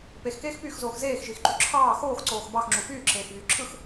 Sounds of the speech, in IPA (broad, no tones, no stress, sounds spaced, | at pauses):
p e x k eː x p yː x z oː x z eː x ʒ i x ǃ y ǁʰ ɑː x oː x ǀ oː x b ɑ x ŋ͡ǁ u f yː ǁʰ eː x v yː ǁʰ ɯ x